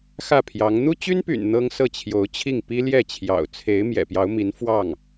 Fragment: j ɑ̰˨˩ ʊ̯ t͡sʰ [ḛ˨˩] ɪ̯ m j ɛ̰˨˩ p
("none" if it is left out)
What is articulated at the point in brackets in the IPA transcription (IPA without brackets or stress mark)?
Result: e˧˥